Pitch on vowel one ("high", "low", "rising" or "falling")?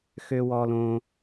high